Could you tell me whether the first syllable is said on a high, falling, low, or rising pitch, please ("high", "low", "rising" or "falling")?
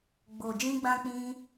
low